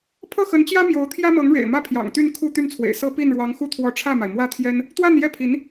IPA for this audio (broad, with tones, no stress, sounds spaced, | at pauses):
pʰ ɤ˥˩ x ə˧˥ n t͡ɕ j ä˥ m j o˧˥ ʊ̯ t̪ʰ j ä˥ m ɤ˧˥ ŋ ɻ ḛ˨˩ ɪ̯ m ä˥˩ pʰ j ɑ̰˨˩ ŋ t̪ y˥˧ n kʰ u˥˧ t̪ y˥˩ n t͡sʰ w ḛ˨˩ ɪ̯ s ɤ˥ p i˥˩ n ɻ w ɑ˧˥ ŋ x u˥˧ t̪ʰ w ɔ˥˧ ʈ͡ʂʰ ä˥˩ m a˩ ɪ̯ m w ä˥˩ t̪ʰ j ɛ˥ n | t̪ w a˥˧ n j ɛ˥˩ pʰ i˧˥ n